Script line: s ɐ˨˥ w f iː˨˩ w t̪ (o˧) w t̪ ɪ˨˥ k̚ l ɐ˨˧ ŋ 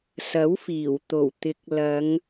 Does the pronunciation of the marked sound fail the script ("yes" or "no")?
yes